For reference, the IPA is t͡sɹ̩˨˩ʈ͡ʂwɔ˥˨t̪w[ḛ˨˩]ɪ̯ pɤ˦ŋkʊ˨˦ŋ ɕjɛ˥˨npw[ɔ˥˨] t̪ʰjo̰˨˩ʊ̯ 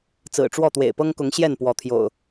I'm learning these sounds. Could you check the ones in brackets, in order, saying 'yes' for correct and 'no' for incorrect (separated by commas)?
yes, no